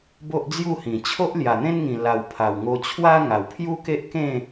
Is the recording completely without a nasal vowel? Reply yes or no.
no